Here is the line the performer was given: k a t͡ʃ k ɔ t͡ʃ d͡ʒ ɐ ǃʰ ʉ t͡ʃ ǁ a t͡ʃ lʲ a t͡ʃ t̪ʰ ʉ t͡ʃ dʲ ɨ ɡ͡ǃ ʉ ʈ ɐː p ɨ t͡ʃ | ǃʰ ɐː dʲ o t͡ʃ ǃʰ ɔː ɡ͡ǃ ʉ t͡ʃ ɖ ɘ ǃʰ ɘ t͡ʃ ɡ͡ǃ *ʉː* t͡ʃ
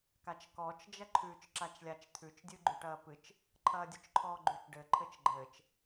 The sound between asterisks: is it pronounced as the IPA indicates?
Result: no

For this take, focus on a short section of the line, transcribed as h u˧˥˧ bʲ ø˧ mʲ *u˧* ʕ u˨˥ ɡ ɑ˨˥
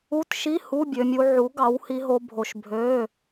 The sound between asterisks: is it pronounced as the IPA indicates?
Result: yes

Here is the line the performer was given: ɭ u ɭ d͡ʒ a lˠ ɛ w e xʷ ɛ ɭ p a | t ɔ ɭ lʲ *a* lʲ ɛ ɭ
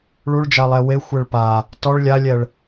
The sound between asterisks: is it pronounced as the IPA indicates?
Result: yes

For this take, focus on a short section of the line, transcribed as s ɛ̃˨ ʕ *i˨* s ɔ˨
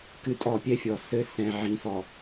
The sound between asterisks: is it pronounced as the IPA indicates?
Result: no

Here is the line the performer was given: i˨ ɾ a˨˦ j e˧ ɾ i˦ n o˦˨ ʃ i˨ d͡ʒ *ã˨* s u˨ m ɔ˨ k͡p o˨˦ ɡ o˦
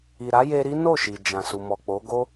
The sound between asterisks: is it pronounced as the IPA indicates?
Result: yes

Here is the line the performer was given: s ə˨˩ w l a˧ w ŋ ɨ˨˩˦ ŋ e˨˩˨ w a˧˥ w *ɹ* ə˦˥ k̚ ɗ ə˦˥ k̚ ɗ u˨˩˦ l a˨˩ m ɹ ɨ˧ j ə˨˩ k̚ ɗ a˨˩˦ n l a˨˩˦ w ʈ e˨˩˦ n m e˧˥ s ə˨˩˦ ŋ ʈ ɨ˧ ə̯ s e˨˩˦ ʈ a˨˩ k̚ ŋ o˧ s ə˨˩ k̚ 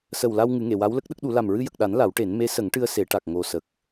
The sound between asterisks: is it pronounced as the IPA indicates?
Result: no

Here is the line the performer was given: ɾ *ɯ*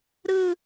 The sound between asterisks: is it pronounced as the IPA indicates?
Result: yes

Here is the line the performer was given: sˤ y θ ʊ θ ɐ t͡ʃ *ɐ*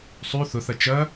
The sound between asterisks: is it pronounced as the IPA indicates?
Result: yes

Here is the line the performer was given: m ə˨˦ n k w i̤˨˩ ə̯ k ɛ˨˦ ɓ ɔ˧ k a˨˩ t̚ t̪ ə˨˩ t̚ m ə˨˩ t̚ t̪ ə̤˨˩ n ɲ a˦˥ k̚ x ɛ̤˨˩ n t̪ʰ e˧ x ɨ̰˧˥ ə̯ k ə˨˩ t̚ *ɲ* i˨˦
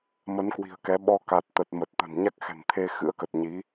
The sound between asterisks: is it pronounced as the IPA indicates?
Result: yes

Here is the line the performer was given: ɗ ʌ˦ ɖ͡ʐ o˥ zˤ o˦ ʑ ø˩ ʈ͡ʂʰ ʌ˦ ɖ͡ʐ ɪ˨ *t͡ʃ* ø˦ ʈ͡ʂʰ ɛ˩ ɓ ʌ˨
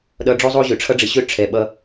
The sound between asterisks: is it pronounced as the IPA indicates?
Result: no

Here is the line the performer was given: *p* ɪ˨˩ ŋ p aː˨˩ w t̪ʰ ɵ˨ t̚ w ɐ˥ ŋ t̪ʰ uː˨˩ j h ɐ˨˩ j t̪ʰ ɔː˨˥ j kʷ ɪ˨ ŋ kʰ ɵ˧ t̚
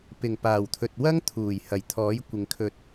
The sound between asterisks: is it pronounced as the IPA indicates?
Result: yes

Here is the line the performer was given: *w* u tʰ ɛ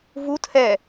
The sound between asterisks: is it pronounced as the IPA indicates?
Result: no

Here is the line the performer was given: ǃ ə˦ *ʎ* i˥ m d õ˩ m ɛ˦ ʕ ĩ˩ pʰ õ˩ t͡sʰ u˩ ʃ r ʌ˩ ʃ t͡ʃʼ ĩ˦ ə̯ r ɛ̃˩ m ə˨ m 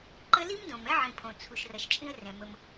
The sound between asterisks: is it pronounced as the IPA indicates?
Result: no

